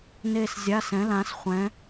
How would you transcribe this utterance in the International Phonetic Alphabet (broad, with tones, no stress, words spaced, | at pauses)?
ne˥˧szʲa˧˥˧sɛ̃˨˥lã˨˥s χʷɛ̃˨˥